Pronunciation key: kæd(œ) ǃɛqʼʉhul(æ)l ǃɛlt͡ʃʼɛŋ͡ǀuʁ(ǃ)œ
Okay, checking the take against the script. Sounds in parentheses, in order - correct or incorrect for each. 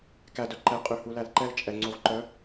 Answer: correct, correct, correct

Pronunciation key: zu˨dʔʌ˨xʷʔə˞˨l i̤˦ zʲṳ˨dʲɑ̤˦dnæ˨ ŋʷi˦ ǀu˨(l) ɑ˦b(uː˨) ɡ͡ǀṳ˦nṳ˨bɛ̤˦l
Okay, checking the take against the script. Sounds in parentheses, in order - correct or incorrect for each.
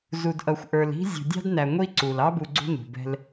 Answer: correct, incorrect

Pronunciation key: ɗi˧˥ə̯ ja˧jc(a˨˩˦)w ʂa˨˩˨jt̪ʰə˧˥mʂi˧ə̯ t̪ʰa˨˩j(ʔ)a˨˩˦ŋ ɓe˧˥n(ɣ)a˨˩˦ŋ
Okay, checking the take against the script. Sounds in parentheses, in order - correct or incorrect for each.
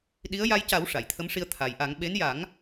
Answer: correct, correct, incorrect

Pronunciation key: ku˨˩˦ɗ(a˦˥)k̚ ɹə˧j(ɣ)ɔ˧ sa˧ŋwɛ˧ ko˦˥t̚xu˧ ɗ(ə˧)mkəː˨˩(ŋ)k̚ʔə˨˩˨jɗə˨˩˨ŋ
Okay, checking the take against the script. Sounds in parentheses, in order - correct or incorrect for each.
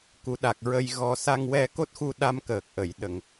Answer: incorrect, correct, incorrect, incorrect

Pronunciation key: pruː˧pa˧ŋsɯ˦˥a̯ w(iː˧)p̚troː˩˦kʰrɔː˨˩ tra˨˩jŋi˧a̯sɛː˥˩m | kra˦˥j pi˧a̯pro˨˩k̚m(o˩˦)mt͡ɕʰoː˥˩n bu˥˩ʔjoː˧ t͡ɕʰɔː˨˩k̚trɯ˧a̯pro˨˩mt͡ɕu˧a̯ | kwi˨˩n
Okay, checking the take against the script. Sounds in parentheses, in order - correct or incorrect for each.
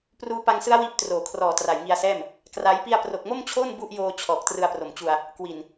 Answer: incorrect, incorrect

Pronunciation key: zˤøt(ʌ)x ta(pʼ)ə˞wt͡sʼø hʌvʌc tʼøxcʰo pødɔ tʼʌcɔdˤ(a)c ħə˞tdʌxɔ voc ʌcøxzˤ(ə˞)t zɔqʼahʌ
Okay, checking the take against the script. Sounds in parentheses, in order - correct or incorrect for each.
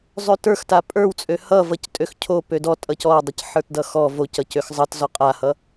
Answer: incorrect, correct, incorrect, incorrect

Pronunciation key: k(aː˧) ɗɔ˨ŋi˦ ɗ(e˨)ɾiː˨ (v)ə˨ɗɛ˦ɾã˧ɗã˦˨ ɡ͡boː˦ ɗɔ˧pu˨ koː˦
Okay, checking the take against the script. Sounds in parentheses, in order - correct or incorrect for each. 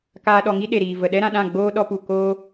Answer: correct, correct, correct

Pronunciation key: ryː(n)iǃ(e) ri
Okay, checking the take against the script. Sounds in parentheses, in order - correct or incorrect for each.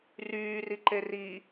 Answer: incorrect, correct

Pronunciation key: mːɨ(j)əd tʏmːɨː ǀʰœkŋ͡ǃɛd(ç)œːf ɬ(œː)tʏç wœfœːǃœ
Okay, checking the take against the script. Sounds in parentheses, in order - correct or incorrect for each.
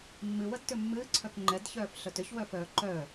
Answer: incorrect, correct, incorrect

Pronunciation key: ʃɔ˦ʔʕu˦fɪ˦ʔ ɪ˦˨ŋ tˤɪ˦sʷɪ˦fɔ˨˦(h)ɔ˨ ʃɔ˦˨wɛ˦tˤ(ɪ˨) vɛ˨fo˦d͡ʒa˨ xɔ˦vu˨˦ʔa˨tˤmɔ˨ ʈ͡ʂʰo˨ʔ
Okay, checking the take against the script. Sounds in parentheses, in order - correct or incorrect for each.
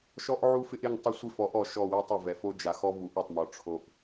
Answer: incorrect, correct

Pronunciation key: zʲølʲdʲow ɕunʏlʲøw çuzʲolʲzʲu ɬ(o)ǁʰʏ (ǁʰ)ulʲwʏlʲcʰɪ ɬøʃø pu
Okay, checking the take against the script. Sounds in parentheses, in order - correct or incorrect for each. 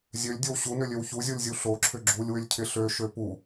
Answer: correct, incorrect

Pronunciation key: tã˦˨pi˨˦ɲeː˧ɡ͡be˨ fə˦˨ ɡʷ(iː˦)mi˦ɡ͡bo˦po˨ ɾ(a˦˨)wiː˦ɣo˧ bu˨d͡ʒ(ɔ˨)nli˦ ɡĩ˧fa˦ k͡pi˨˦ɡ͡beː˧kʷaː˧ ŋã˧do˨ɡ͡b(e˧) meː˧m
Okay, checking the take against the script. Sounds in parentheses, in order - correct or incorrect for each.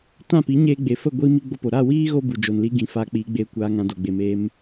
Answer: correct, correct, incorrect, incorrect

